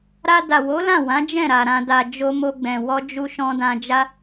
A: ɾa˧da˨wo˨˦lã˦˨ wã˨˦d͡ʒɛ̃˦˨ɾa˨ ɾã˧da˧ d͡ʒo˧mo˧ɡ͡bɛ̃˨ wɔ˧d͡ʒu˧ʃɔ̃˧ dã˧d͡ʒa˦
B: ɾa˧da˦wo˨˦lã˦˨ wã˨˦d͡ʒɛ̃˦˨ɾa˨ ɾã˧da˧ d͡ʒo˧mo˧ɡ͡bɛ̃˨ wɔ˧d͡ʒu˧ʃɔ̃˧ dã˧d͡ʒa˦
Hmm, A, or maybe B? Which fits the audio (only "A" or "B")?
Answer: A